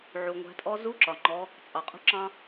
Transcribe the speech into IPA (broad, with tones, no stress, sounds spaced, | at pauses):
ʕ u˩ ŋʷ æ̤˩˧ tʼ ɔ˧ z u˧˥ ǁ ɒ˩ ŋ͡ǃ ɔ˩˧ | t͡sʼ ɑ˩ qʼ ṳ˧ ǁ ɑ̃˧